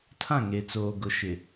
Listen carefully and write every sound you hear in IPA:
tʰã˦˨ŋe˨t͡soː˨ ɡʊ˨ʃɪ˨

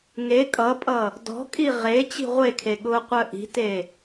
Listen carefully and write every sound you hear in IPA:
ŋe kʼʌpʼʌ | dɔ̤kʼi ʁe t͡ɕi̤ʁʷekʰe ɠʊːqʷœʔi̤te

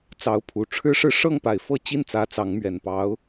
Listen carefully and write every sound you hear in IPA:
t͡sɑ˧˥ʊ̯pʰu˨˩ ʈ͡ʂʰɻ̩˥ʂɻ̩˥˧ ʂɤ˥˩ŋpa˨˩ɪ̯fɤ˥˧ t͡ɕi˥˩nt͡sä˧˥ t͡sɑ˧˥ŋmɥɛ˨˩npɑ˧˥ʊ̯

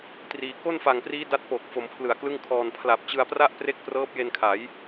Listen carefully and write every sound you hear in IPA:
triː˧ ko˥˩nfa˨˩ŋpriː˦˥ da˦˥t̚po˨˩k̚ fo˩˦m pʰlɯ˨˩a̯klɯ˥˩ŋkʰɔː˧n pʰla˨˩p̚t͡ɕɯ˧a̯pra˥˩ʔpre˦˥k̚ prɤː˦˥p̚je˧nkʰa˩˦j

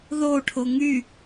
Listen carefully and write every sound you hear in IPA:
ðoʈʰo ŋy

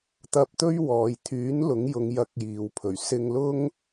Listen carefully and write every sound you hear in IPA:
t̪ɐ˥p̚ t̪ɵ˥ɥwɔː˨jt̪ʰyː˨˥n lʊ˨˥ŋjʊ˨˧ŋ jɐ˧k̚jiː˨wpʰɵ˨˩ɥ sɪ˧ŋlʊ˥ŋ

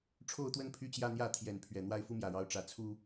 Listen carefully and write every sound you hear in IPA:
ʈ͡ʂʰo˥˨ʊ̯t̪wə˦n pʰy˦t͡ɕjä˦n̪jä˥˨ t̪ʰjɛ˨˦n pʰɥɛ˨˩n̪wa˥˨ɪ̯fu˦ mjä˨˩ɻɑ˨˦ʊ̯ ʈ͡ʂä˨˦ t͡sʰu˦

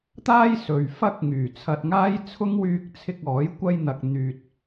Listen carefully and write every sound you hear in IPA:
t̪aː˥jsɵ˨ɥ fɐ˥k̚ ŋyː˨˩t͡sʰɐ˧t̚ŋaː˥jt͡sʰʊ˥ŋ wyː˧k̚t͡sʰɪ˧k̚ɔː˨˥j kʷɐ˧jn̪ɐ˨k̚ n̪yː˧t̚

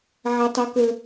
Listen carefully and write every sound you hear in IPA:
ʕa˦tˤæ˦kə˦

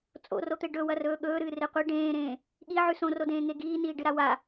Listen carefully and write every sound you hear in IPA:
t͡sʼo̰rot̪e ɖɵwɐrɵː ɠɵːɾɨːre qʷi ɖẽːɾẽː | ɠiʕʉ sõrodẽːŋe ɡiːniːɖɨɾa wa

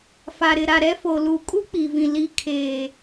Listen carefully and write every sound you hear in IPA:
fa˨ɾɪ˨ɾa˨ ɾɛ˦fo˨ luː˨kʼu˦ k͡pi˨vĩ˨ li˨ kʰeː˨

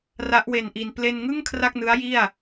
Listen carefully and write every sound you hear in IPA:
ra˦˥ʔwe˧nʔi˧n ple˧nŋɯ˥˩ŋ kʰra˥˩k̚nɯ˦˥a̯ji˥˩a̯

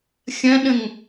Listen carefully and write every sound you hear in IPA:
xʲɐ̃ɗə̃ŋ

